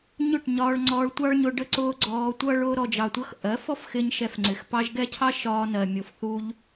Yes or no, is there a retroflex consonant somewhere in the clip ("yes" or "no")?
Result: yes